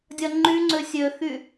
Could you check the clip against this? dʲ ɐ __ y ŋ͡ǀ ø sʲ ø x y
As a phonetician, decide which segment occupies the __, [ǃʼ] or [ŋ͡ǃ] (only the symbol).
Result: ŋ͡ǃ